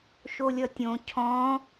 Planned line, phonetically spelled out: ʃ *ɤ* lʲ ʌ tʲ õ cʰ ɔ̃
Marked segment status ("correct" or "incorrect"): incorrect